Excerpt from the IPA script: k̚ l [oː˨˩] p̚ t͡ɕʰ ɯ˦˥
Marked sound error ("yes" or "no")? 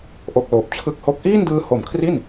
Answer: no